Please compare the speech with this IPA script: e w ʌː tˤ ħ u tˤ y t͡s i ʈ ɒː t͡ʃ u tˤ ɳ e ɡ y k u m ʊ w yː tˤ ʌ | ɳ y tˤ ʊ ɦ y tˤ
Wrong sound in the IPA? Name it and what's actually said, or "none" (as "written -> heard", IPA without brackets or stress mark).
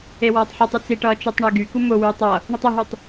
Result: ɒː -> ʌː